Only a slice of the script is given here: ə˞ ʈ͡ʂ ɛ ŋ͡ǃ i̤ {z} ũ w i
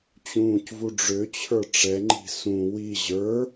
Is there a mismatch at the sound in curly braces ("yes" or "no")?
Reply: yes